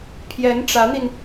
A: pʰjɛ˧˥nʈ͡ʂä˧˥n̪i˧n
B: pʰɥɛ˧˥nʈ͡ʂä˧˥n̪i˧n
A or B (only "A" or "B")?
A